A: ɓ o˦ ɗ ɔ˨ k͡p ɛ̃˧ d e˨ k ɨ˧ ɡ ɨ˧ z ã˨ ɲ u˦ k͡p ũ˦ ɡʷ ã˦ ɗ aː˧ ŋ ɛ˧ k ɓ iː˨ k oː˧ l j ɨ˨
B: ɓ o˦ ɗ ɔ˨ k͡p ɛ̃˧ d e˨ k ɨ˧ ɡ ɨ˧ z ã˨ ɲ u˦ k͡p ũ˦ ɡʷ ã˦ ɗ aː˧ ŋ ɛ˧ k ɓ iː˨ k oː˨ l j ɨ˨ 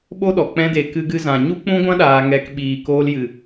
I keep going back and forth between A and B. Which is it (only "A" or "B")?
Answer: A